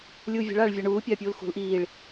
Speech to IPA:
lʲ uː vʲ ɛ̤ ɭ aː ɭ vʲ a ɳ uː pʲ aː pʲ uː l x ṳ l ʔ iː ɭ

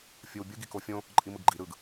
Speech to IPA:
fʲ ɯ w bʲ ɯ ɡ i k o fʲ õ | ǃʼ i m ɯ ɡ ɡ͡ǃ i ɾ ɯ ɡ

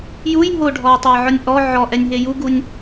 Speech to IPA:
j u j ɦ o ɖʱ ɔ j tˤ ø j ʕ ɔ nʲ ʔ ɔ ʕ ɔ ʔ ɛ nʲ ɦ e j u ɡ u nʲ

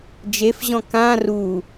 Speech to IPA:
d͡ʒ e f ʑ ɔ̃ k ã r u

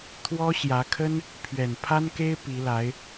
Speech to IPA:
t̪ʰ w ɔ˥ ɕ j ä˧˥ kʰ ə˥ n | pʰ ɥ ɛ˨˩ n pʰ a˥ n k e˥ ɪ̯ p i˧˥ l a˧˥ ɪ̯

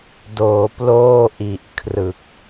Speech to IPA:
d oː˩˦ p l oː˥˩ ʔ i˨˩ ʔ kʰ r ɯ˨˩ k̚

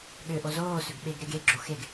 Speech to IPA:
ɠ ø ʔ o z oː s ø ɡ ɓ e ɡ ɾ e ɡ e ɡ͡ǁ o x e ɡ

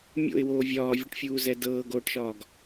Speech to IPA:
mʲ o̰ ɪ̯ w oː vʲ ɒː vʲ ɤ ʈ fʲ uː z ɛ d ɤː ɡ oː ʈ ʃ ɒː ɡ

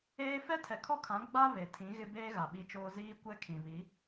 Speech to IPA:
eː˦ f ɛ˦ tʰ ɛ˨ kʰ ɔ˦ kʰ ã˨˦ ɡ͡b a˦ β e˨ tʰ ĩ˨˦ ɣ ɪ˦ b eː˦ ɣ a˨ ɓ i˦ t͡ʃ oː˦ z iː˦ kʷ ɛ˦ kʰ ĩ˨ β i˨˦

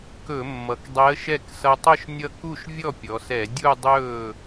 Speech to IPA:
k ɵ˧˩˧ mː ʌ˩˧ k dˤ ɛ˧˥ ə̯ ʃ ɛ˥˩ k s ʌ˧ tˤ ɵ˥˧ ʃ nʲ ʌ˥˧ k u˥˩ ʃ vʲ ɔ˥˩ pʲ ɔ˩˧ s ɛ˧˩˧ dʲ u˥˧ dˤ ɵː˥˩

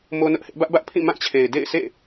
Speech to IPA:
m o˦ n ʊ˦ ʔ h ɪ˦ ʔ b ä˦ ʔ b ä˦ ʔ pʰ ĩ˦˨ m ã˦˨ t͡ɕʰ e˨ ɪ̯ d ḛ˦˨ ɪ̯ sʰ ḛ˦˨

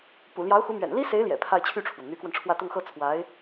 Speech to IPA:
p ṵ˨˩ l j ɑ˧˥ ʊ̯ x u˧˥ m ɥ ɛ̰˨˩ n l i˥ s e˧˥ ɪ̯ l j ɛ̰˨˩ pʰ a˥˧ ɪ̯ t͡ɕʰ y˥˩ ʈ͡ʂʰ w ə˩ n n̪ y˧˥ k w ə˧ n ʈ͡ʂʰ w ä˥˧ t̪ ʊ˥˧ ŋ x ɤ˥˩ t͡sʰ w a˧˥ ɪ̯

